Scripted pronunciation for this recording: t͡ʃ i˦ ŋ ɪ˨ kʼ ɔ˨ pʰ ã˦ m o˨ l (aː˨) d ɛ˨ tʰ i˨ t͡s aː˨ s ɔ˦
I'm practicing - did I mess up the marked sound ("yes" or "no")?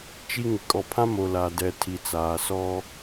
yes